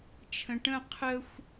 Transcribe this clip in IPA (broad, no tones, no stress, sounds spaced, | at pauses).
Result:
t͡ʃʰ ə̃ ʈ ə̃ qʰ ə xʷ